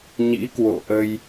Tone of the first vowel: rising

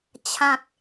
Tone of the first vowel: low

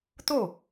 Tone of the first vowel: falling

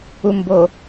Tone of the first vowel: low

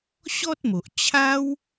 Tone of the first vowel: high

